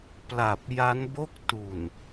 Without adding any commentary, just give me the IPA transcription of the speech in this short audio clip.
p l a˨˩ p̚ j a˦˥ n b o˥˩ k̚ t u˨˩ n

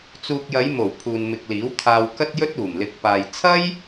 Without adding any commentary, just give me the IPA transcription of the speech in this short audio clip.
t͡s uː˨ k̚ j ɐ˨˧ j m o˨˩ w pʰ uː˨ n m ɪ˨ k̚ l iː˨˥ w t̪ʰ aː˧ w k ɐ˥ t̚ j ɵ˥ t̚ uː˨˩ m l ɪ˨ k̚ p aː˨ j t͡sʰ ɐ˥ j

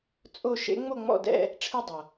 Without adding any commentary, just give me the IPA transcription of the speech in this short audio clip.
t͡sʼ o˦˨ ʃ ḛ˧˥ ŋ͡m o˦˨ ŋ͡m ɔ̰˦˨ d ɛ̰˦˨ | ʈ͡ʂʰ ɨ˦˨ dˤ ʌ˩

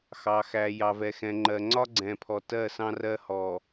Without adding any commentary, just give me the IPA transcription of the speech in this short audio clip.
x ɑ˨ x æ˨ j ɑ˨ v ɛ˨ x ɛ̃˨ ŋ͡ǃ ɜ˨ ŋ͡ǀ ɒ˦ ɡ͡ǀ ɛ̃˨ pʰ ɔ˨ t ɜ˦˨ s ɑ̃˦ r ɜ˦ h ɔ˨

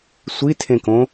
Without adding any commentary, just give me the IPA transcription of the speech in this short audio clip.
sʷ i tʰ ẽ k õ

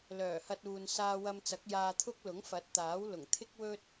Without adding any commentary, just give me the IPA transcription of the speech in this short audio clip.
l œː˨˩ h ɐ˧ t̚ uː˨ n s aː˧ w ɐ˧ m t͡s ɐ˨˥ k̚ j aː˧ t̪ʰ ʊ˥ k̚ l ʊ˨˥ ŋ f ɐ˨˥ t̚ t̪ aː˨˥ w l ʊ˨˩ ŋ t̪ʰ ɪ˥ k̚ w ɵ˥ t̚

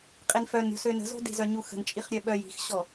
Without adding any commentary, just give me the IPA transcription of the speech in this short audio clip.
qʼ e n f œ n ɾʲ o̤ s ø n ə̤ z o̤ d e̤ z œ ɲ u x ə̤ n t͡ʃʼ i χ ɾʲ œ ɓ œ j i̤ x ɕ ɔ

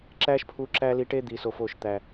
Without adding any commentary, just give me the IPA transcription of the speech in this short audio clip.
ǁ æ˦ ʃ pʰ u˧ ǁ æ˦ l i˧ ʈ e˦ d̪ i˨ s o˨ f o˨ ʃ t̪ æ˨

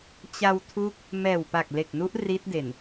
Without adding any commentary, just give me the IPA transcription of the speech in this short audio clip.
t͡ɕ a˧ w tʰ u˦˥ k̚ | m ɛː˨˩ w p a˨˩ k̚ l e˨˩ k̚ n u˦˥ ʔ r i˦˥ t̚ d e˨˩ n

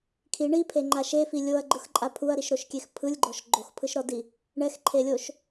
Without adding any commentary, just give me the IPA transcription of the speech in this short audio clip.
kʰ i ɳ i pʰ e ŋ͡ǃ a ʃ e f i lʲ o ɐ̯ ɡ͡ǃ ɯ x ǃʼ a pʰ u ɐ̯ ɾ i ʃ ɾ o ʃ kʲ e x pʰ ɯ lʲ ɡ͡ǃ ɔ ʃ ɡ͡ǃ o x pʰ ɯ ʃ ɾ ɔ d i | ɳ ɛ x ǃʰ e lʲ o ʃ

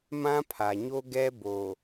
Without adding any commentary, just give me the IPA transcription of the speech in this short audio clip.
m ã˦ pʰ a˨ ɲ o˦ ɡ ɛ˦ b o˨

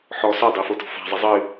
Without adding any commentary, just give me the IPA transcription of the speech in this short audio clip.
ħ ɔ s ɔ dˤ i f o t ɔ̤ f a̤ zˤ ɐ zˤ ɨ

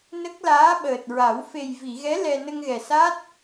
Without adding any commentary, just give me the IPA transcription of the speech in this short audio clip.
n ə˦˥ k̚ l aː˧˥ ɓ əː˨˩ t̚ ɹ a˨˩˦ w f e˨˩ j v i˨˩˨ ɣ ɛ˧˥ l ɛ˧ n ə˧ ŋ ɣ ɛ˨˩ s a˦˥ t̚

